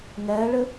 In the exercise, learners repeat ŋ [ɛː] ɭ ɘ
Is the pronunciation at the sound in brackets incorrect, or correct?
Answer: correct